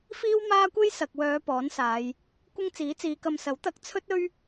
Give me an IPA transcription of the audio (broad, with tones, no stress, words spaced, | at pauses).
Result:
fiː˥wmaː˥kʷe˥j sɐ˨k̚ wœː˨˧ pɔː˨˥nsaː˨˧j | kʷɪ˥ŋt͡siː˨˥t͡siː˨˧kɐ˧m sɐ˨˥wt̪ɐ˧k̚ t͡sʰɵ˥t̚ɵ˥ɥ